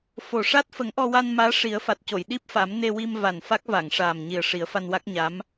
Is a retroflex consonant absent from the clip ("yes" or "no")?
no